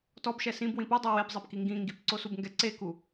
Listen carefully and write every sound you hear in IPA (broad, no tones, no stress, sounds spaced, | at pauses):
t ɔ b ʃ ɛ s ĩ b w ĩ p u dˤ o w e b zˤ ɛ p k i ŋ ɡ ĩ ŋ ɡ i p ǀ o s u b ŋ ɡ ɛ ǀ e k u